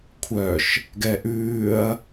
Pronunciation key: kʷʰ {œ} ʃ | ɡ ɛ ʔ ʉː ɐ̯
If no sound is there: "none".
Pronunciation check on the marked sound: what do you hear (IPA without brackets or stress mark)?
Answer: œ